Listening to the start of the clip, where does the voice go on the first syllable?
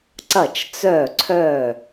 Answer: falling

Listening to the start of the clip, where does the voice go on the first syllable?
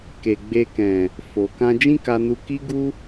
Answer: low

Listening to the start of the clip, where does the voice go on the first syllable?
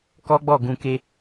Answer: high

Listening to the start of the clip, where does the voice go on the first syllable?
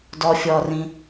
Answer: low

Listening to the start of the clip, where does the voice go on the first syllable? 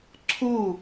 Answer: falling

